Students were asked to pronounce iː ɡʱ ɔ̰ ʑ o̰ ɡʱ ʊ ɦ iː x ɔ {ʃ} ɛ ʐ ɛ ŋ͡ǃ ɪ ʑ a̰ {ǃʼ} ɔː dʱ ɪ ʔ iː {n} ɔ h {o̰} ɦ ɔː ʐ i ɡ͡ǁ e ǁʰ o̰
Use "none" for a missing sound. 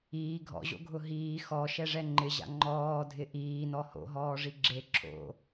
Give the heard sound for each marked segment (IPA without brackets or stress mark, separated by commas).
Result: ʃ, ŋ͡ǃ, n, o̰